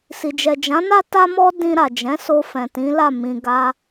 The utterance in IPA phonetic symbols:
s i˨ d͡ʒ ɛ˨ d͡ʒ ã˨˦ n a˦ t a˦ m ɔ˦ d ĩ˧ ɾ a˨ d͡ʒ ɛ̃˨˦ s o˧ f ɛ̃˨ t ĩ˨˦ l a˦˨ m ĩ˧ ɡ a˦

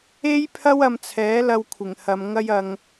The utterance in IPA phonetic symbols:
e˥ j pʰ ɐ˥ w ɐ˧ m t͡sʰ ɛː˨˥ l ɐ˧ w kʷʰ ɪ˨˩ ŋ h ɐ˧ m ŋ ɐ˥ j ɐ˧ ŋ

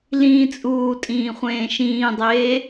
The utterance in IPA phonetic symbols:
l ĩː t͡sʼ uː tʼ ĩː χʷ ẽː ʃ ĩː dˤ eː

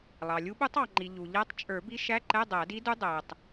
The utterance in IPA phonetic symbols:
lˠ ɑ˩ lʲ u˧˥ ɓ u˧˥ tˤ ɑ˩ ŋ͡ǃ i˩ ʎ u˩ ʎ æ˧˥ tˤ t͡ʃʼ ə˞˨˩˦ b i˧˥ ʃ æ˧˥˧ ǃ ɛ˧˥˧ dˤ æ˨˩˦ d i˧˥ d u˧˥ dˤ æ˩ tˤ

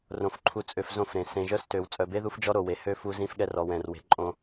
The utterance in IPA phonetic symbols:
r õ˨ f ǃʰ u˨ t͡sʼ ø˨ f z õ˦˨ f ɾ ẽ˨ s ẽ˨ ʒ œ˦ s t ø˨ w t͡sʼ œ˨ b e˦ ð u˦ f d͡ʒ ɔ˦ ɾ o˨ w e˨ h ø˦ f u˦ z ĩ˦ f ɠ ɛ˦ r ɔ˨ w ɛ̃˨ r w e̤˨ ǃʼ õ˦

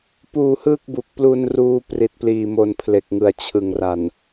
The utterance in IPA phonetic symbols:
p uː˧ h ɯː˥˩ k̚ b u˨˩ k̚ p l u˧ n r uː˧ p r i˨˩ t̚ p l iː˨˩ m o˨˩ n pʰ l e˨˩ k̚ ŋ ɯ˨˩ a̯ t͡ɕʰ ɯ˨˩ ŋ r a˨˩ n

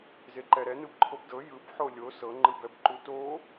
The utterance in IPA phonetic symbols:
z e ǃ ɛ ɾ ɛ n ɯ b ǃʰ o b d ɤ j ɯ b ħ o lʲ o s ɤ ŋ͡ǃ ɯ b ɛ b ǃ u t o

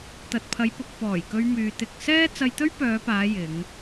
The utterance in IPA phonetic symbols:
t̪ ɐ˨ t̚ pʰ ɐ˨˧ j p ʊ˨ k̚ p ɔː˨˩ j k ɵ˧ ɥ m yː˨ t̪ ɪ˨ k̚ s ɛː˥ t͡s ɐ˧ j t̪ ɵ˥ ɥ p œː˨˧ p aː˨˧ j ɪ˨˧ ŋ

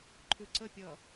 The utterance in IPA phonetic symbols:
ǃʰ ʉ ǀ ə pʲ ʌ

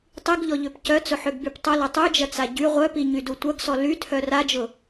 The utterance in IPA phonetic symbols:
tˤ i ɡ ʎ ɔ ʎ ø p c œ t͡s ʊ ħ ø ɡ b y p tˤ ʊ l ɐ tˤ y d͡ʒ ɐ t͡s a ɟ y ʁʷ œ p i ɲ y d u tʷ ɐ ɡ s ɔ l y tʰ œ r a d͡ʒ ʊ

